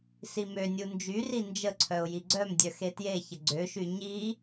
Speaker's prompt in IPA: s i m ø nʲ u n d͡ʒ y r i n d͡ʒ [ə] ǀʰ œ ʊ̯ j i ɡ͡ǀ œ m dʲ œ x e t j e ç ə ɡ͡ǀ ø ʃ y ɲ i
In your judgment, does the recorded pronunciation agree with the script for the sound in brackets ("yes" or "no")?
yes